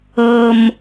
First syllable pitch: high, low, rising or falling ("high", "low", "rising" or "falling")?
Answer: low